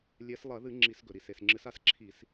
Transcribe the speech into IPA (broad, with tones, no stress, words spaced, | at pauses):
lʲe˨˦s lˠɐ˧˩˧ðɨ˧˩˧ ŋ͡ǁi˧˩˧sɡɵ˩ɾi˩s e˩sŋ͡ǁɨ˨˦sa˨˦sǁʰi˧˩˧s